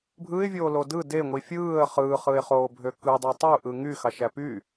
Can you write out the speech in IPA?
bʱ ɯ ɪ̯ vʲ oː l o d ɯ d e ŋʷ i fʲ ɯː ə̯ χ ɯː χ ɯ ɪ̯ χ oː bʱ ø k ɯ dˤ ɑ tˤ u ʔ ɯ ŋ y x ɑ ʃ æ p y

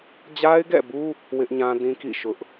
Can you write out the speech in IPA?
d͡ʑ a˦ ɪ̯ ɡ ɛ̰˦˨ b u˦ | w ɪ˦ ʔ ɲ ã˦ d ĩ˦ k ḭ˦˨ ʃ ʊ˦ ʔ

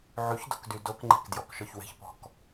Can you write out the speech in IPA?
ʕ y ç d o̤ k d y d o k ŋ͡ǃ e̤ k d j ɔ k ʃ ɔ ç w e̤ ç p ɔ̤ k

